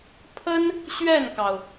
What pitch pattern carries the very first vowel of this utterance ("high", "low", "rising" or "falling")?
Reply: high